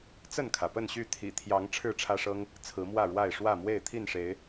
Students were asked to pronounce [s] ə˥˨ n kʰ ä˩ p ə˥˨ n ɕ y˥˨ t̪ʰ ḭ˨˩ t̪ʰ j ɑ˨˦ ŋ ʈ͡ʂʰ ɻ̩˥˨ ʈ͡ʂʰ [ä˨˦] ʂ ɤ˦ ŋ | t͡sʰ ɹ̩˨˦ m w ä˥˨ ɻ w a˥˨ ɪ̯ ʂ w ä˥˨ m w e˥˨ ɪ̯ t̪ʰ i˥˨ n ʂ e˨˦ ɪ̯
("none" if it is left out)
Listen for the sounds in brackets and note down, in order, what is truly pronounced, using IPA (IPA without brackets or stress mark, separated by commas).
t͡s, ä˦